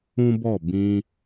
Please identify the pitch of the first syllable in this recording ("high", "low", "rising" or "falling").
high